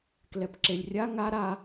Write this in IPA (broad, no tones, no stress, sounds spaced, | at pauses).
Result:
k l ɛ p ǁ e lʲ rʲ a ŋ a ɾ a